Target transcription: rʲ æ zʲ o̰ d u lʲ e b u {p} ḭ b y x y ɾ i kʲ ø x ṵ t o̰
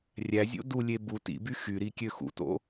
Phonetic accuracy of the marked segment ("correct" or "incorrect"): incorrect